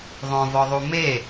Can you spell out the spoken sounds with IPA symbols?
ðˤ õ v ɔ ðˤ u m e

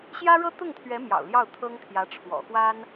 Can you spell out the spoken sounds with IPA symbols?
ɕ j ä˥ ɻ ɤ˥ t̪ ʊ˥˩ ŋ t̪ʰ ɥ ɛ˧˥ m j ɑ̰˨˩ ʊ̯ l j ɑ˥˩ ʊ̯ t̪ʰ ɤ˥ ŋ t̪ʰ j ä˧˥ ʈ͡ʂʰ w ɔ̰˨˩ x w a˥ n

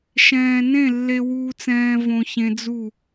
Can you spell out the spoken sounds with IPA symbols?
ʃ ɛ̃ː˨ n ẽ˦˨ lː e˧ w uː˧ t͡s ɛ̃ː˧ v õ˧ ç ẽ˧ d͡z u˦˨

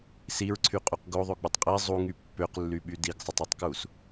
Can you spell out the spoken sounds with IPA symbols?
s i ɹ ǀʰ y qʼ u q ɡ o ðˤ o ɡ͡b ɯ tˤ qʼ i zˤ u ŋ y pː ø q lː y ɓ y d i ɡ sˤ ɯ tˤ i tˤ k u s

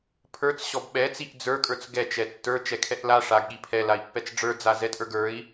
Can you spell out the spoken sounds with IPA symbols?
pʰ ə˞ t͡s ɕ ɔ b ɓ ɛ t͡s i ʔ d͡z ə˞ kʼ ə˞ t͡s ɡ ɛ t͡ʃ ɛ tː ə˞ t͡ʃ ɛ kʰ ɛ ʔ l a ʂ a ɡ ɠ i pʰ ɛ l a i̯ pː ɛ t͡s ɖ͡ʐ ə˞ d͡z a z ɛ tʼ ə˞ ɡ ə˞ i̯

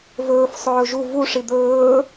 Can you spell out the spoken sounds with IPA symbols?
v ɵː f sˤ ɵː ʒ u v u ʂ i d̪ ɵː

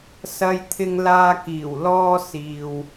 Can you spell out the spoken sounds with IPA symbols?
s ɐ˧ j t̪ʰ ɪ˧ ŋ l aː˧ k iː˨˩ w l ɔː˧ s iː˨ w

